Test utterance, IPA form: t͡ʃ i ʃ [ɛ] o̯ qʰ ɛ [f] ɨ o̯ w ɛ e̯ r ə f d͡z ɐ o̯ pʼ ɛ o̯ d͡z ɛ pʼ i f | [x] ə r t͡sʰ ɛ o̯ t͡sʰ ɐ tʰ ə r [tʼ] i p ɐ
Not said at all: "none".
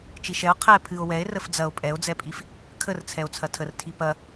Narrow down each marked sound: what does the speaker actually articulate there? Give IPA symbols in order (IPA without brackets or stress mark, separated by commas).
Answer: ɛ, pʰ, kʰ, tʰ